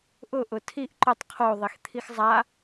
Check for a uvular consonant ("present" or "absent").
present